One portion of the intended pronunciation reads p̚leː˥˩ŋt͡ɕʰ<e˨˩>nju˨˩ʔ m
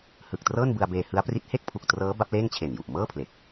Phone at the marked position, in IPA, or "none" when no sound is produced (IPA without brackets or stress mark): e˨˩